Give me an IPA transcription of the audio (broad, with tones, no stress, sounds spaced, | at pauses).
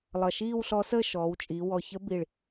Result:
lˠ ʌ˧˩ ʃ iː˥˧ w ɬ ɔ˧˥ s əː˥˧ ʃ ɔː˩˧ w t͡ʃʼ i˩˧ w ɔ˧˩ ç ə˧˥ b i˧˩ ɭ